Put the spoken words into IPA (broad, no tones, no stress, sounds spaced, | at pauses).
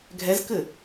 ɡʱ ɛ z k ɘ